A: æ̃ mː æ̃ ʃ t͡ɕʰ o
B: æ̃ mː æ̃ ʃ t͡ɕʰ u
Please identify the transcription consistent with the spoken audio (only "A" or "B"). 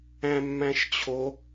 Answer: A